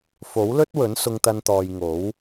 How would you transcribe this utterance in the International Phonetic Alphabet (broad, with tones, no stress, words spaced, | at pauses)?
fo˨˥wlɵ˥t̚wɵ˨˥n sʊ˥ŋt̪ɐ˥nt̪ɔː˧j ŋo˨˥w